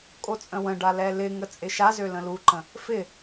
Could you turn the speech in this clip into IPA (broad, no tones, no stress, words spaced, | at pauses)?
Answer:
kʼot͡sʼə̃wə̃ɖa lɛlɪŋə t͡sʼɪʃazø lə̃luǃə̃ | fɪ